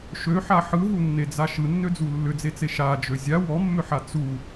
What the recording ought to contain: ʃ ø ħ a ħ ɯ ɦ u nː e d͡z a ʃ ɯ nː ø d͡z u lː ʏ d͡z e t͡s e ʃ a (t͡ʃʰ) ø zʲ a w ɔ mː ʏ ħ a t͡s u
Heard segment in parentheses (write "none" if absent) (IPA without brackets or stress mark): d͡ʒ